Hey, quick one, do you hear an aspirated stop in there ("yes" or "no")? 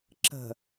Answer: no